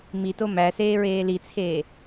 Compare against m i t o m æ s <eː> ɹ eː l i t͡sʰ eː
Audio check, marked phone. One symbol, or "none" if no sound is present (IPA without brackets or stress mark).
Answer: eː